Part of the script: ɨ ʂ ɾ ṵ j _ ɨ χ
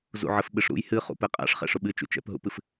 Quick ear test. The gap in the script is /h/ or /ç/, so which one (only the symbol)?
h